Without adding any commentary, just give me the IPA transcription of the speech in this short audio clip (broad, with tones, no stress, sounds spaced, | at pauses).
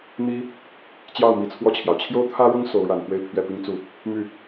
n̪ i˥ | t͡ɕ j ɑ˥˩ ʊ̯ m i˧˥ t͡sʰ w ɔ˥˩ t͡ɕʰ j ɑ˩ ʊ̯ t͡ɕʰ j o˥˩ ʊ̯ t̪ʰ ä˥ ɻ ʊ˥ ŋ s o˧˥ ʊ̯ ɻ a˨˩ n p w e˥˧ ɪ̯ pʰ ɥ ɛ˥˩ p i˥ ŋ t͡s u˥˩ | m y˥˩